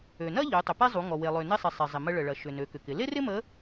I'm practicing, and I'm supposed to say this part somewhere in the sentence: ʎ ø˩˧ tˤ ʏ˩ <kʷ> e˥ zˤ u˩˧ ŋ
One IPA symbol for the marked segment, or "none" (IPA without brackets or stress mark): p